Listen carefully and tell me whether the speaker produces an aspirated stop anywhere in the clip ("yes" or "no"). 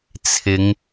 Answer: yes